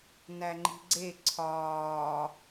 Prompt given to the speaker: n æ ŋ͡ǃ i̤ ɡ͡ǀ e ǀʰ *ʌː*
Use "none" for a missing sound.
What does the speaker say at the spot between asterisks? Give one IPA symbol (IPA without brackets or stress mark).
ɒː